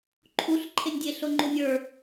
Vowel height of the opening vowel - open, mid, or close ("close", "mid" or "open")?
close